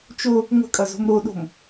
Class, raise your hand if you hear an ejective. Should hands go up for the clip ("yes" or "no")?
yes